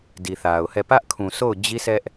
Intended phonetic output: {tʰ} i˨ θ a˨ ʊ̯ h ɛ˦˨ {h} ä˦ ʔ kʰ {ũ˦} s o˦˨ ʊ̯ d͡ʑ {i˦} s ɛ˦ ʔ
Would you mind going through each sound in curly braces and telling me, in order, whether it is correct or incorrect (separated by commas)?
incorrect, incorrect, incorrect, correct